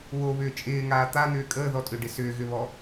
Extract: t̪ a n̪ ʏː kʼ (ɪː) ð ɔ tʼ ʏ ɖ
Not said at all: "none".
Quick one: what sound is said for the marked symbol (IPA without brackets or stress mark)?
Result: əː